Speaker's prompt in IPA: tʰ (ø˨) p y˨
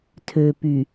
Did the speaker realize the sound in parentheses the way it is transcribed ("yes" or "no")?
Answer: yes